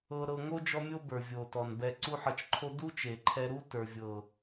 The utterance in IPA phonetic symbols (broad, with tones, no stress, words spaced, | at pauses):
ɤ˧ɾɤ˧ŋo˦ d͡ʒɔ˦mʲo˦ bə˞˨vʲo˨tɔ˨n bɛ˧ǀu˦ħɤ˧t͡ʃǃʰo˦ du˦t͡ʃe˨ǃʰɛ˧ ɾu˦tə˞˨ vʲɤ˨